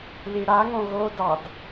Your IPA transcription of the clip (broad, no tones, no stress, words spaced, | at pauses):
liɽaŋõ ɣodɑd